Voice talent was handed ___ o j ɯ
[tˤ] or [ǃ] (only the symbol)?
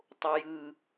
tˤ